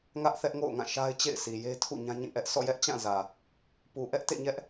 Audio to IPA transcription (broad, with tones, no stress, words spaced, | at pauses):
ŋä˦ʔ θɛ˦ʔ ŋo̰˦˨ʊ̯ŋã˦˨ ʃa˦ɪ̯t͡ɕḛ˦˨ɪ̯si˨je˦ tʰṵ˦˨ɲã˦ɲĩ˦˨ʔɛ˦ʔ sɔ̰˦˨jɛ˦ʔt͡ɕã˦˨ zä˨ | pu˨ʔɛ˦ʔtḛ˦˨ɲɛ˦ʔ